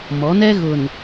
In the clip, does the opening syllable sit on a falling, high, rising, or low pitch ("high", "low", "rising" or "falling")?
rising